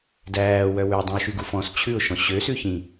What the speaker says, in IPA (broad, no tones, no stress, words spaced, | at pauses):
dæːwœ wʉ dˤĩʊ̯ʃyɡufɔ̃s t͡ɕʰʉʊ̯ʃɔ̃ ɕøsʉ çĩ